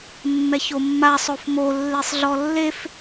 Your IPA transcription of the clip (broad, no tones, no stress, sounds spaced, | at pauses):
mː ɛ ç o mː a sˤ o f m o lː e sˤ ɮ ɔ lː e f